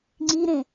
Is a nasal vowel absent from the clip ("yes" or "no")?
no